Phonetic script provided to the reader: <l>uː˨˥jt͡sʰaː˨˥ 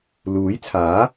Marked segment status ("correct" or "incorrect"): correct